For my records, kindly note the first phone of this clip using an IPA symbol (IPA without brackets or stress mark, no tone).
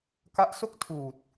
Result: k